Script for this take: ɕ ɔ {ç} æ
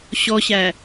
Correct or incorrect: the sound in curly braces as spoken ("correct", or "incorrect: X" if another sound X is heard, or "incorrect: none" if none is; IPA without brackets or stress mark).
incorrect: ɕ